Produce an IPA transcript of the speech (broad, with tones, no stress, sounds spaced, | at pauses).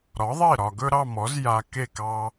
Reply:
ɾ ɒ˩˥ ðˤ e˥˩ ɾ ɒ˩ ɡ ɵ˥ ɾ ɑ˥˩ m ɔ˩˥ z j a˧ k e˥˩ k ɑ˧